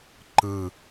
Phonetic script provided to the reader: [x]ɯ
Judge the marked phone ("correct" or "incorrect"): incorrect